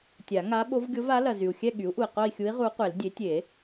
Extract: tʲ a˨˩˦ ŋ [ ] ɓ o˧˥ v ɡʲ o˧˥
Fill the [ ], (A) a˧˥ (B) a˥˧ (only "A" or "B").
A